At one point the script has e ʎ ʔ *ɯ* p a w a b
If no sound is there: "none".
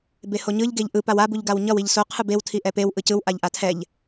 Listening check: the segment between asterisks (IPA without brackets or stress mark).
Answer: ɯ